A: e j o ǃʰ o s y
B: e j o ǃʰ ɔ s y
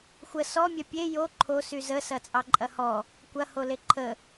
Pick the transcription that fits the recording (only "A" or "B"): A